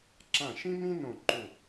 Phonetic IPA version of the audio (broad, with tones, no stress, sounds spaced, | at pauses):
ǁ ã˧˩ ʃ ĩ˥ m ĩ˥ n õ˧˩ ǃ u˧˩